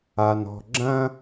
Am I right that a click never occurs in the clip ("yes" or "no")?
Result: no